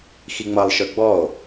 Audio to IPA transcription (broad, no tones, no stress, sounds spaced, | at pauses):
x i ŋ͡m ʌ lˠ ʃ ə˞ ɡ͡b ɔ o̯